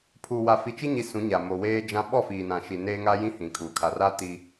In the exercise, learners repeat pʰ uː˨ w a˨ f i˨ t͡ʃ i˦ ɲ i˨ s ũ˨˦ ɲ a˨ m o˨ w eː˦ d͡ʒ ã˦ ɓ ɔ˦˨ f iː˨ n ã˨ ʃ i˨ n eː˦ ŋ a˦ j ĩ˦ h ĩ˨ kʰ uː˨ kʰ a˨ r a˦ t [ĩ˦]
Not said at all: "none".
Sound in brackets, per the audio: i˦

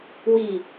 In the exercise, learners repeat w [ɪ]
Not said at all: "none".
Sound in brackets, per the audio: i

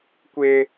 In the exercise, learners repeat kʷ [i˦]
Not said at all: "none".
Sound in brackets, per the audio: ɪ˦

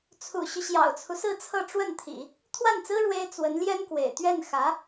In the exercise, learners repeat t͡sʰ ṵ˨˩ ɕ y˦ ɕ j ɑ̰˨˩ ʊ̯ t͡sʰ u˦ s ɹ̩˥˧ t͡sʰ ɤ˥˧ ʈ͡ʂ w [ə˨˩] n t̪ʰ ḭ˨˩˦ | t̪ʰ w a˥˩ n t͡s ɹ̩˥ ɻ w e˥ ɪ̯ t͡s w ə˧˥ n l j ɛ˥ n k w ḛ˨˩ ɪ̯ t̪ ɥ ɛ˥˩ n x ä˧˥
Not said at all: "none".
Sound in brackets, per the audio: ə˥˩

